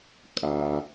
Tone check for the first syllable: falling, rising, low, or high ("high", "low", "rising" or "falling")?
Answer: low